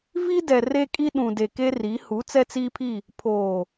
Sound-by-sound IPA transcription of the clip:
v i˦ d ɛ˨ r e˦ kʼ i˦ ɗ ũ˨ d e˨ k e˦ r i˨˦ h u˨˦ t͡s ɛ˦ t͡s i˦ pʰ i˦˨ | pʰ oː˨

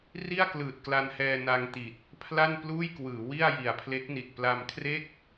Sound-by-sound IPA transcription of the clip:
r i˥˩ a̯ k l ɯː˨˩ t̚ k l a˧ n h ɛː˧ n a˧ ŋ t i˨˩ t̚ | pʰ l a˥˩ n p l uː˥˩ j k w ɯː˩˦ w i˥˩ a̯ j i˨˩ a̯ pʰ l e˦˥ k̚ n i˨˩ t̚ p l a˧ m kʰ r e˥˩ k̚

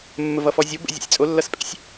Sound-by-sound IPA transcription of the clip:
mː ə v ʌ f ɔ zʲ o b ə̰ zʲ ḛ sʲ t͡sʼ o lː ʌ s pʼ ḛ sʲ

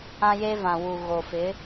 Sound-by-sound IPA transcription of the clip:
ã˦ j e˦ v ã˨ w u˨ ɣ o˨ f ɪ˨˦

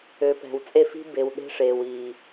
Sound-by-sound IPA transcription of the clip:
ø˨ p ɛ̤˨ w t͡sʼ e˦˨ f i̤˦ b e˨ w ɗ e̤˦ ʂ eː˨ w iː˨

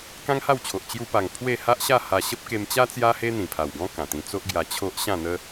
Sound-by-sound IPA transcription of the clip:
k ã˦ ŋ h a˥˧ w t͡ɕʰ o˨ ʔ t͡ɕ j u˧ p a˨˩ ŋ pʰ w e˥˧ h a˦ ʔ ɕ a˥˧ h a˧ ɕ ə˦ p̚ k e˧ m t͡ɕ a˦ t͡s j a˦ h e˦ n̪ ĩ˨˩ pʰ a˨˩ w ɡ ɔ̃˦ k ã˨˩ t̪ ĩ˧ t͡s o˦ ʔ ɡ j a˧ t͡ɕʰ o˦ ʔ ɕ ã˥˧ n̪ ə˦

